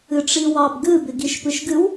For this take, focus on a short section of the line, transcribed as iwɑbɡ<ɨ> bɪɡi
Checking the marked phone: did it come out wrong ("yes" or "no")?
no